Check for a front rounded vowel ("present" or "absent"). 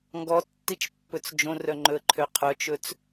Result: present